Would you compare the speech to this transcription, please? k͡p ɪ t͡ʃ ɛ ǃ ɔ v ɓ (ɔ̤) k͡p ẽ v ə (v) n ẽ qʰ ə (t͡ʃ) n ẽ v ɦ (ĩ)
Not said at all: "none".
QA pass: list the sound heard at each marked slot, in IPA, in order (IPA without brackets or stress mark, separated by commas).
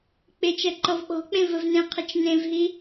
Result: ɔ̤, v, t͡ʃ, i